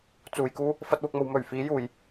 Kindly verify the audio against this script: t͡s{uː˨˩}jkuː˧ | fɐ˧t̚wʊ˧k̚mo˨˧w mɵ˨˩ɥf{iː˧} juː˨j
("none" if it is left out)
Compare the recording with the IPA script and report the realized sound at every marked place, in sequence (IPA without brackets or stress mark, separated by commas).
uː˨, iː˨˧